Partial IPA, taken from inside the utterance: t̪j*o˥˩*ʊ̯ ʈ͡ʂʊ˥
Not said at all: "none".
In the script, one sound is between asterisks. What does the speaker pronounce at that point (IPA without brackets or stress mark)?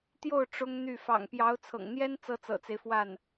o˥˩